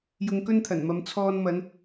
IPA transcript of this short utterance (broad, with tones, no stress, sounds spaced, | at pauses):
j ʊ˧ ŋ k ɵ˥ n t̪ʰ ɐ˨˩ n m ɐ˨˧ m t͡sʰ ɔː˧ n m ɐ˨˧ n